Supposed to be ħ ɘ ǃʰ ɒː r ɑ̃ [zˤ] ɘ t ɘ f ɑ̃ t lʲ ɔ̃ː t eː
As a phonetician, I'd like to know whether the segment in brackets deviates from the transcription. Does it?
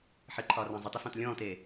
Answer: no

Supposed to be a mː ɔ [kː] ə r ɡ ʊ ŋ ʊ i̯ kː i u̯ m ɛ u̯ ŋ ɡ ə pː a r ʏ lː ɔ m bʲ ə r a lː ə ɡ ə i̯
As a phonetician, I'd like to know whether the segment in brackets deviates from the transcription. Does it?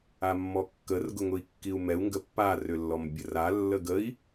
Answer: no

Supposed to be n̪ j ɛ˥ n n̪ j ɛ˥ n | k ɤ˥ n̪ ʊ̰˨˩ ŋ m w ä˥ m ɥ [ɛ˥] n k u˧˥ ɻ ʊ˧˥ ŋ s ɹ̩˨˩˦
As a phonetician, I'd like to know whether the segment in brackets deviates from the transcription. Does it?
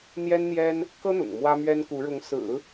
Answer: no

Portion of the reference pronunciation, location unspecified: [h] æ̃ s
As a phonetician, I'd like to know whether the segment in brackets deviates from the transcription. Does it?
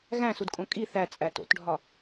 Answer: yes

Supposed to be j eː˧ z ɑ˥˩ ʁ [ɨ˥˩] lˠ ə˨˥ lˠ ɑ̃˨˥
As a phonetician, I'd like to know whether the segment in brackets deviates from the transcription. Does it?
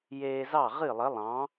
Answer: no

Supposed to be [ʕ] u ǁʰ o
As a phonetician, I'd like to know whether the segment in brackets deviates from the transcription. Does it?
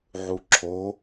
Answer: no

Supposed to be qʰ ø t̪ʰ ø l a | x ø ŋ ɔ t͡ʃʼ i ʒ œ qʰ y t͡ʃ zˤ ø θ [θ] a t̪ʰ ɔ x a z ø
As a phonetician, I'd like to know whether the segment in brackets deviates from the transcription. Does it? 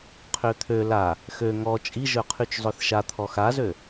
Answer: yes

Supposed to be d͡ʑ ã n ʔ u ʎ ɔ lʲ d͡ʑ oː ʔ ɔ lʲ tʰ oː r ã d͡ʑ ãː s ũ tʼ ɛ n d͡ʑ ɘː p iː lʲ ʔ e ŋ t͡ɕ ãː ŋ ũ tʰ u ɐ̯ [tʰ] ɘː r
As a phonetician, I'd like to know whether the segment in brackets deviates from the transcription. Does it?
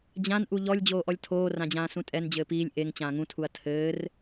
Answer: no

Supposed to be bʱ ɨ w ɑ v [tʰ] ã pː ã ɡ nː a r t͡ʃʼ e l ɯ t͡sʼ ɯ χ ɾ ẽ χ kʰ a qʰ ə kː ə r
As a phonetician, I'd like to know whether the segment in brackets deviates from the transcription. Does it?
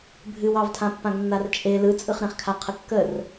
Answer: no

